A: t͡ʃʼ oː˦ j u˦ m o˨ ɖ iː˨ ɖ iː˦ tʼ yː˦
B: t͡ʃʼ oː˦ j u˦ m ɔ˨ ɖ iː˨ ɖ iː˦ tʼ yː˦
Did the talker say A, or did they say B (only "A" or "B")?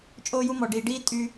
B